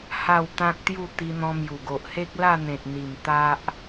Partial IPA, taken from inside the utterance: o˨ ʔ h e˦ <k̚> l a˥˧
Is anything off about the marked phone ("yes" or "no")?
no